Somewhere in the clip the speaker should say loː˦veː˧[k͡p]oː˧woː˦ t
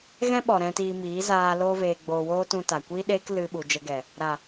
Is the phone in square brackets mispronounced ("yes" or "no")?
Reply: yes